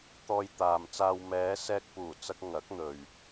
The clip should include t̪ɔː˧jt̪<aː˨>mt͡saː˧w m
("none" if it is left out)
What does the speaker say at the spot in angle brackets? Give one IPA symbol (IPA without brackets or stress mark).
aː˨